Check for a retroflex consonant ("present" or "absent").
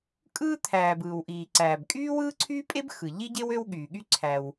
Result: absent